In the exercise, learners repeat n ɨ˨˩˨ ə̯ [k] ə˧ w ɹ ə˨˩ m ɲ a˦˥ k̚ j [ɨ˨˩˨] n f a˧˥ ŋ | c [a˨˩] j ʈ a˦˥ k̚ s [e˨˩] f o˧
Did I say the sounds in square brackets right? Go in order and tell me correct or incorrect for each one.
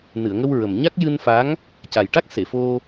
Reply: incorrect, incorrect, correct, incorrect

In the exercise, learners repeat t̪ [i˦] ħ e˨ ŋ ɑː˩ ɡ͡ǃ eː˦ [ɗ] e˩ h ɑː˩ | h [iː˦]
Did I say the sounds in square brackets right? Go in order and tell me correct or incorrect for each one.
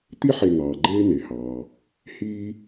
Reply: correct, incorrect, correct

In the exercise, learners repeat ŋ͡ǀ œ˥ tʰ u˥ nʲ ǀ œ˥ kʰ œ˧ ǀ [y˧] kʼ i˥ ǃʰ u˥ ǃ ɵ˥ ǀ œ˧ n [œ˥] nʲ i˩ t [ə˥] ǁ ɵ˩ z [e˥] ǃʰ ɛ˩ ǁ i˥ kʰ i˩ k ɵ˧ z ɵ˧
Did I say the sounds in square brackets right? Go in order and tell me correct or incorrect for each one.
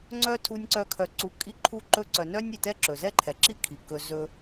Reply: incorrect, correct, incorrect, incorrect

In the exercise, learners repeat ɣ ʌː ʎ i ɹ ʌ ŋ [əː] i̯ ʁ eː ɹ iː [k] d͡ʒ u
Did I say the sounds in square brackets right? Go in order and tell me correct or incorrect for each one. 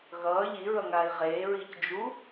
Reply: incorrect, incorrect

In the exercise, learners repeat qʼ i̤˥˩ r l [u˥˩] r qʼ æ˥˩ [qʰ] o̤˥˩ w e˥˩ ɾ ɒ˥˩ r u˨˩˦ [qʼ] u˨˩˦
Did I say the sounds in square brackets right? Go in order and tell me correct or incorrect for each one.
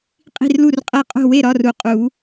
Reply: correct, incorrect, correct

